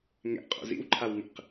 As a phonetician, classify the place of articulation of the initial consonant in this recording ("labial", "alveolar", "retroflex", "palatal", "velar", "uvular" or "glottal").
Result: velar